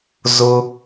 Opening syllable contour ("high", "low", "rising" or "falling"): high